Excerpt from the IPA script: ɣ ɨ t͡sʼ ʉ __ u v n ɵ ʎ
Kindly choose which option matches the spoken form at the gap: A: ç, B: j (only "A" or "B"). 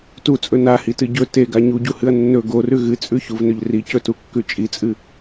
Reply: A